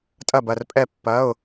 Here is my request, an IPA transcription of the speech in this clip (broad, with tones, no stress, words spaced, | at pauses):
tʼɐ˥˧bɐ˥˧r pʼɛ˥˧pːɐ˧˥˧ʊ̯